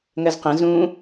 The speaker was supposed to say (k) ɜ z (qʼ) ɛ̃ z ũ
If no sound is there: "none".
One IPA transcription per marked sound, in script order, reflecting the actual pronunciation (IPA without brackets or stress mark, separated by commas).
ŋ, q